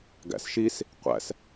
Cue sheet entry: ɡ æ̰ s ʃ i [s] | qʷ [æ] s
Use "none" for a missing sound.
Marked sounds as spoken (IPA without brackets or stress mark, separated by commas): s, æ̰